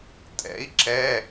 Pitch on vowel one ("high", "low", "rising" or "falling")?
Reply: rising